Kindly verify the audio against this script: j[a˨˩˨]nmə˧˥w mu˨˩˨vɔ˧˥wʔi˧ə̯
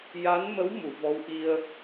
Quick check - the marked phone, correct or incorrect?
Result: incorrect